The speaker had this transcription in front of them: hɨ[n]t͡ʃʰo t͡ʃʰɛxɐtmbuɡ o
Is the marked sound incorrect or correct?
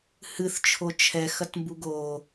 incorrect